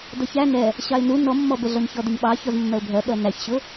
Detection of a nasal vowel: absent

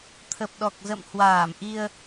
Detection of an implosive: present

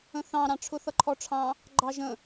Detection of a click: present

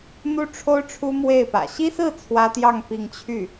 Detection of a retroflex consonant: present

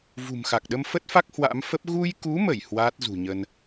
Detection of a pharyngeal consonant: absent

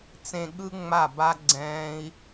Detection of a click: present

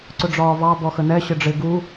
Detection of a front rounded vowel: absent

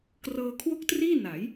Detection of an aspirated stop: present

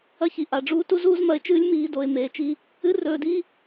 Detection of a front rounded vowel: absent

